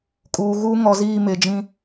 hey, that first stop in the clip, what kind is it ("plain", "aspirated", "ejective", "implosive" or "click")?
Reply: ejective